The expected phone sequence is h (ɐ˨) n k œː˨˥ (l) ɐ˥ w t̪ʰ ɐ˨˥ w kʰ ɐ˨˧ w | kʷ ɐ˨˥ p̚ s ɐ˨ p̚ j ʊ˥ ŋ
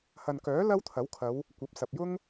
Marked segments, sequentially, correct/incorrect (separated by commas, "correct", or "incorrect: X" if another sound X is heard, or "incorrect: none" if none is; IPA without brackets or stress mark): correct, correct